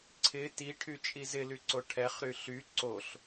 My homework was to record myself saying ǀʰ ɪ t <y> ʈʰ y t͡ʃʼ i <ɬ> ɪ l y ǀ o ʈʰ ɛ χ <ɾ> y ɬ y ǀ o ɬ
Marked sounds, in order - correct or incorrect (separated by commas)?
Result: incorrect, incorrect, correct